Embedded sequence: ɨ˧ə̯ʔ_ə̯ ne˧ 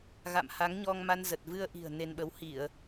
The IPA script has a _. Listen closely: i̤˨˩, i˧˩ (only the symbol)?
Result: i̤˨˩